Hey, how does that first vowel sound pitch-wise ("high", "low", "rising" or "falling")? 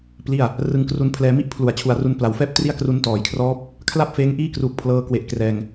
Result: falling